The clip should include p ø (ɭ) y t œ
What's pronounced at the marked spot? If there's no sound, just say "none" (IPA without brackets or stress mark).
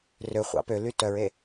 l